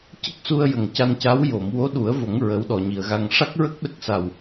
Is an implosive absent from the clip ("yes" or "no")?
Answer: no